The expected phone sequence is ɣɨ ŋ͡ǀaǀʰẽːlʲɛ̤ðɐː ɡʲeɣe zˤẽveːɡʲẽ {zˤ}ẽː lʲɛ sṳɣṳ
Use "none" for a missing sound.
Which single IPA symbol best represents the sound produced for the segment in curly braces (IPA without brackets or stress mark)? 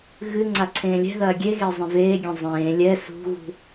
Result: zˤ